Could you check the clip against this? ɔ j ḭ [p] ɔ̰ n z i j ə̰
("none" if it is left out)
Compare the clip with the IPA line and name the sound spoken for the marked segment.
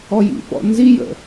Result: p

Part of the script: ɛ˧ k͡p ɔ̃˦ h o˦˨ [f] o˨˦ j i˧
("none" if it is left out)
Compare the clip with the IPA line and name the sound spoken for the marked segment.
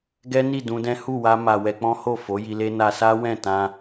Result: f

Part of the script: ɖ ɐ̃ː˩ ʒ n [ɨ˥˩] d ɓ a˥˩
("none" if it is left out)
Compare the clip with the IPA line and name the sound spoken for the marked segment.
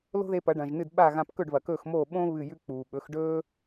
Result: ɨ˥˩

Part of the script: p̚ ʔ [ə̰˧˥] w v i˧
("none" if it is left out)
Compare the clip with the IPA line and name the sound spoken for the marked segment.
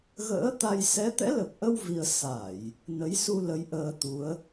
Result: ə˧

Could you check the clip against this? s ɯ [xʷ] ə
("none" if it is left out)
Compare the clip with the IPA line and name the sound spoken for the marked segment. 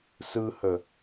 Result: h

